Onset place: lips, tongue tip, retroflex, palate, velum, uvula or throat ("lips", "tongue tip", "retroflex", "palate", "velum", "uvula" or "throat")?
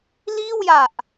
tongue tip